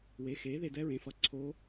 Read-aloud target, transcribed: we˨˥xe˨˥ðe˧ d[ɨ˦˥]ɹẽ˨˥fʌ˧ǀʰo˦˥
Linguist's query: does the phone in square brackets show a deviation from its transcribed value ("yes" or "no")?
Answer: yes